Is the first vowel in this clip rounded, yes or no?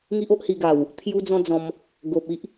no